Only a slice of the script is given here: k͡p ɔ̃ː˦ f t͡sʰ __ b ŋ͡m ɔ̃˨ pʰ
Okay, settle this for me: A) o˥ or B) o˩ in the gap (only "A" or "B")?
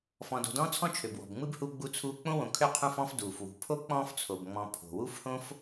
B